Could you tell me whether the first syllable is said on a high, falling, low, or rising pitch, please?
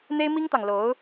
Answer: high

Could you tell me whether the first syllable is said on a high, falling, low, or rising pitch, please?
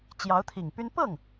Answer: rising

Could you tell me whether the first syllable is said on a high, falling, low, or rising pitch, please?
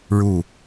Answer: falling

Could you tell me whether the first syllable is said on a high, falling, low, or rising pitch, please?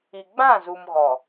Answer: low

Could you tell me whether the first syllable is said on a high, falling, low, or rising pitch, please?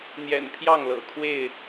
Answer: low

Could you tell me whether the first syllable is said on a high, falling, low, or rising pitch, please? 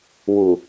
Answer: low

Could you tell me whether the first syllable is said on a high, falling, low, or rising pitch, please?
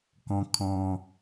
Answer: high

